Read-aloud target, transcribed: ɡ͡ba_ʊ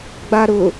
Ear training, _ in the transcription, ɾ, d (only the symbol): ɾ